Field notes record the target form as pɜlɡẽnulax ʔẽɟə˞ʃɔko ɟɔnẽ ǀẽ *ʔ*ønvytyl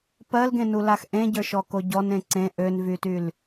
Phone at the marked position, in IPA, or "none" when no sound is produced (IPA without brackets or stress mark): ʔ